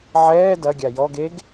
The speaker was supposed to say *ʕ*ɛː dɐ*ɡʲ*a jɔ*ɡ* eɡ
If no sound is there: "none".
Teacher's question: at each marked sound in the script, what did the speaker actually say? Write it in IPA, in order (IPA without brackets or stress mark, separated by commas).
ʕ, ɡʲ, ɡ